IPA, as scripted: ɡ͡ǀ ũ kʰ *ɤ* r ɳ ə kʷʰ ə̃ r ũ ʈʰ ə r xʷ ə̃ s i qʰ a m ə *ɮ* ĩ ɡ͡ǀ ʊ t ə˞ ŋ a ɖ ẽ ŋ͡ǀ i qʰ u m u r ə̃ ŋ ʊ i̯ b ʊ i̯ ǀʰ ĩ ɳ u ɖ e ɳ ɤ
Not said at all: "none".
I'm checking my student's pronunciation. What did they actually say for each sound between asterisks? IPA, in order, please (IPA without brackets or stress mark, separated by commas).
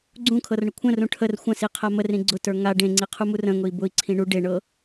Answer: ɤ, r